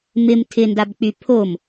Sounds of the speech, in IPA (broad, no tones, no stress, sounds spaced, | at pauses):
m ɪ m tʰ ɪ n d a b k͡p y pʰ o m